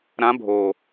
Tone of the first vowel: rising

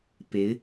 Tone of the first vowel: rising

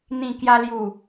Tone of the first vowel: low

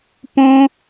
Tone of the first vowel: high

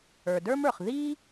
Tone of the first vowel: low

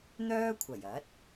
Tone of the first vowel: high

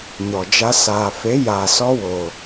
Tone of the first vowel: low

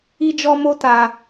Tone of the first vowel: high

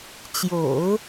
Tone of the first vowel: low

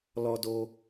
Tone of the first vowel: high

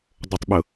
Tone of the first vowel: low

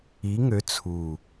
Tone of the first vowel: rising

